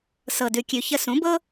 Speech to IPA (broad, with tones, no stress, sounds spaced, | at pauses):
s ɤ˨ d ʉ˨ kʲ ʉ˨ ç ə˧ s ũ˨˦ b ɤ˦